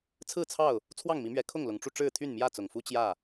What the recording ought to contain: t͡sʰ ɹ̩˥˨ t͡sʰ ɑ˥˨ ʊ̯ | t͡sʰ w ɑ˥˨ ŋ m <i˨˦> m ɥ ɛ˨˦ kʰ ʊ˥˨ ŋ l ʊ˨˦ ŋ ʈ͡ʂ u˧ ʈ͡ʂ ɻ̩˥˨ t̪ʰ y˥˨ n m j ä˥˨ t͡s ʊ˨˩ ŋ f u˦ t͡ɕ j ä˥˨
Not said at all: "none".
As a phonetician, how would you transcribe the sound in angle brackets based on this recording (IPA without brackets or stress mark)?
i˨˦